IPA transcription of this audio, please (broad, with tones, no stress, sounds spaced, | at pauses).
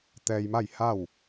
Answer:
t̪ ɛː˧ j m a˥˨ j h a˥˨ w